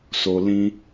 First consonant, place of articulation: alveolar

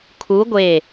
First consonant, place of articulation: velar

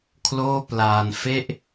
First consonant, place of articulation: velar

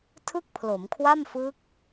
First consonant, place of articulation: alveolar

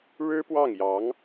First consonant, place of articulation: retroflex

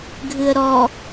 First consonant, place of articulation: velar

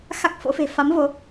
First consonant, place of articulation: velar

